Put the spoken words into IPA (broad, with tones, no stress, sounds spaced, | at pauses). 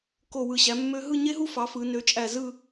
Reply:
k o˧˩ w ɯ˧˩ ɕ æ˩˧ mː ø˧ ɦ ɯ˥˧ ɲ e˥ ɦ u˥ f ɑ˩˧ f ɯ˩˧ n ø˩˧ t͡ʃʼ æ˧˩ z ɯ˥˧